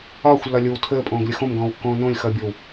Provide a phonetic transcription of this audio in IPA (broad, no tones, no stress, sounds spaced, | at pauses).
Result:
ɒː xʷ lː ɒ lʲ o w tʰ əː pʼ õː ɡ lʲ ə x õ m ɡ ɔ̃ː w kː õː n õ lʲ x ʌː bʲ ɔ w